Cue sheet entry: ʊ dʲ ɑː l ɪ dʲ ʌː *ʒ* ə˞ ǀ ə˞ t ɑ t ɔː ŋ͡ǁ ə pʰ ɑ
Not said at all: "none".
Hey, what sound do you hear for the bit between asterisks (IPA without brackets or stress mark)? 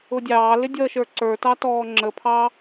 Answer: ʃ